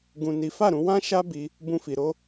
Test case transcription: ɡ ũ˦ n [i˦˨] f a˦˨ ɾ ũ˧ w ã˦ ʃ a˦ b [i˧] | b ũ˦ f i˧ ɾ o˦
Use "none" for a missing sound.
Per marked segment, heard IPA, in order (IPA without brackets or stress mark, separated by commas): i˦, i˧